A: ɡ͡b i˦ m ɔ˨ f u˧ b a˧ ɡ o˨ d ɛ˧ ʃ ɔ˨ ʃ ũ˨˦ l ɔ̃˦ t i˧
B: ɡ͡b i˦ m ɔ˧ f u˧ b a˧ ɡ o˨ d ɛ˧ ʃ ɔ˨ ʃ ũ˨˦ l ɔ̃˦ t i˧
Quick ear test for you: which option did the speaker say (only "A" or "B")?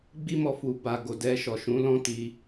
B